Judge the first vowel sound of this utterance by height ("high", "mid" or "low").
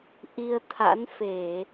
high